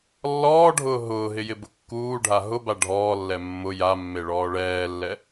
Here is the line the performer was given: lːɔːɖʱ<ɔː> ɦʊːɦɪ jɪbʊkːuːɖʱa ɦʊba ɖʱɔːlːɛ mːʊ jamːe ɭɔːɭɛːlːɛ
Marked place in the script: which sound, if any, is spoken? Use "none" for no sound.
ʊː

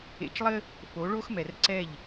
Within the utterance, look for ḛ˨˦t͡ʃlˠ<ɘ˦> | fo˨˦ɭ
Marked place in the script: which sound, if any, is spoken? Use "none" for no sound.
ɘ˦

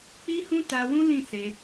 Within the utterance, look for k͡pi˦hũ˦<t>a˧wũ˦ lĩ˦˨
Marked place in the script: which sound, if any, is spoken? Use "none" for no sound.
t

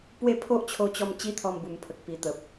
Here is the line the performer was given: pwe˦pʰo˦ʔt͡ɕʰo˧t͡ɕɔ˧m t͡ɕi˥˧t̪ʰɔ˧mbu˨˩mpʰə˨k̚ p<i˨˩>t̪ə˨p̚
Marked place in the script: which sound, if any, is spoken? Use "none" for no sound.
i˨˩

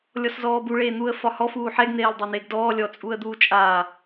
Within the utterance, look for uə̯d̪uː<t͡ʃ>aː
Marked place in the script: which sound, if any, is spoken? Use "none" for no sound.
t͡ʃʼ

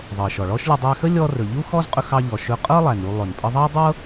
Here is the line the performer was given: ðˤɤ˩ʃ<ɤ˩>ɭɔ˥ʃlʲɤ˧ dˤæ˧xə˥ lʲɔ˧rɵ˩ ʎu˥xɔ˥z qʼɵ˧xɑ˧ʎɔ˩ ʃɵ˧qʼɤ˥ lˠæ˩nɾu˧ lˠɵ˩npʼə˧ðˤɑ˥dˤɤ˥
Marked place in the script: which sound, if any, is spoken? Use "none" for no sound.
ɔ˩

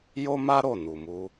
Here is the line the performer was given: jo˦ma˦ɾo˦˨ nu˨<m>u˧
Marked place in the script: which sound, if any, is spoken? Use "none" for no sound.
m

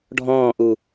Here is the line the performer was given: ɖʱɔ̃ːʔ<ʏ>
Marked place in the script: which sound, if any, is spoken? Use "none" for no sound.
u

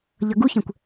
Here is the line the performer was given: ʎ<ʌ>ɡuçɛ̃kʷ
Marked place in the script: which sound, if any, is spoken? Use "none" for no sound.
ʌ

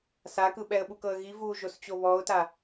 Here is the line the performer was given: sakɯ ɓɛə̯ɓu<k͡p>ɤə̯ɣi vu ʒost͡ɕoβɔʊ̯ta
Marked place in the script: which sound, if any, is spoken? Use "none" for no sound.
k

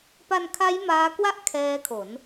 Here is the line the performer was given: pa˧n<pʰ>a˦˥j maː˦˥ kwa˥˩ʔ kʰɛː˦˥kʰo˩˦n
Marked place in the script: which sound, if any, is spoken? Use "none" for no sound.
kʰ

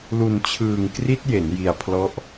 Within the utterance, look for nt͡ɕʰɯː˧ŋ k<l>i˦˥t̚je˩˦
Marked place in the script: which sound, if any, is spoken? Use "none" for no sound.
r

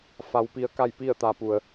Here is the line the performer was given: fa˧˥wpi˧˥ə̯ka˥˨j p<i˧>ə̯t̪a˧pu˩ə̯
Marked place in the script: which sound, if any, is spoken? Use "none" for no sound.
i˥˨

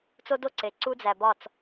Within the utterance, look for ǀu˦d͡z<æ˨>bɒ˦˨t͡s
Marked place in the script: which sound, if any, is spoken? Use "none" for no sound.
æ˨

